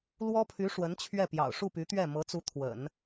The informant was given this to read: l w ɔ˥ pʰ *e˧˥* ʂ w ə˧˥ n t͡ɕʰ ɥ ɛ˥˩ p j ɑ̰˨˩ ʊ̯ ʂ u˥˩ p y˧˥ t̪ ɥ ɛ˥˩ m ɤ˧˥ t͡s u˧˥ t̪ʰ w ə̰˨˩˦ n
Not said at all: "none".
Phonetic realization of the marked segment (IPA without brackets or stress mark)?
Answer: y˧˥